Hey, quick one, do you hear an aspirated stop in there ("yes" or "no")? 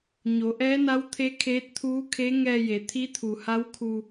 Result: yes